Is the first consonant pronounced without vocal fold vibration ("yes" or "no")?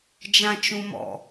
no